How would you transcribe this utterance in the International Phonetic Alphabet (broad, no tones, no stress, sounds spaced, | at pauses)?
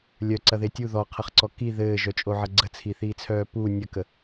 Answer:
lʲ œ ǀ ɐ ð e tʲ u ð ɔ qʰ ɐ χ ǀ ɔ k i ð ɘː ʒ œ t͡ʃʼ o ʕ ɐ ɡ͡ǀ ə t͡sʰ i θ iː t͡sʰ œː p u nʲ ə k ə